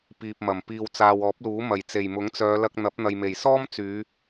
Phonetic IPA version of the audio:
p iː˨ p̚ m ɐ˨˩ m p iː˨ w t͡s aː˨ w ɔː˨˥ p̚ l uː˨˥ m ɐ˨˩ j t͡s e˨˩ j m ʊ˨˥ ŋ t͡s œː˨˧ l ɐ˧ k̚ n̪ ɐ˨˥ p̚ n̪ ɐ˨ j m e˨˩ j s ɔː˥ m t͡s yː˨˧

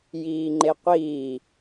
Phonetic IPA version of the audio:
j iː ŋ͡ǃ e qʷ iː

